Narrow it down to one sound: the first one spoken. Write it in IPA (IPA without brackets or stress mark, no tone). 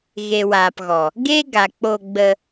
ɣ